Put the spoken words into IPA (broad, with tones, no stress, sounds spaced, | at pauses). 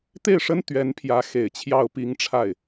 t̪ e˥˩ ɪ̯ ʂ ə˥ n t̪ ɥ ɛ˧˥ n pʰ j ä˧˥ x e˨˩ ɪ̯ t͡ɕʰ j ɑ˥˩ ʊ̯ p i˥ ŋ ʈ͡ʂʰ a˥˩ ɪ̯